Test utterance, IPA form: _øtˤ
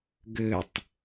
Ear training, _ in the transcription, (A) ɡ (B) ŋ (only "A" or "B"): A